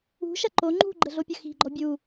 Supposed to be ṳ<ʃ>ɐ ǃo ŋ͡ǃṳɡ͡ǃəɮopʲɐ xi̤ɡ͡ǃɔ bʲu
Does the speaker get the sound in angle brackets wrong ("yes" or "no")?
no